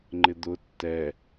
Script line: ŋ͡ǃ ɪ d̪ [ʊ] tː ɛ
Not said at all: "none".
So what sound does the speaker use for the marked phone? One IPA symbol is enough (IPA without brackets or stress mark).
ʊ